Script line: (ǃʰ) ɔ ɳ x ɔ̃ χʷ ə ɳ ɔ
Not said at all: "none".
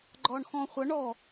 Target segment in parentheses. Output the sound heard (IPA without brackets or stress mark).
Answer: ɡ͡ǃ